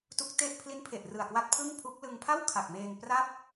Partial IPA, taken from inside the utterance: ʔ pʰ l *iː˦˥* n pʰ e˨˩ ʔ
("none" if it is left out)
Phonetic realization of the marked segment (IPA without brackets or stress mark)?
i˦˥